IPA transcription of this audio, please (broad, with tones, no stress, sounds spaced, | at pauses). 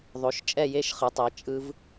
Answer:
ðˤ o˩˥ ʃ t͡ʃʼ ɛ˥˨ j e˦˥ ʃ χ ɯ˩˥ tˤ ɛ˩˥ t͡ʃʼ ɯ˦˥ v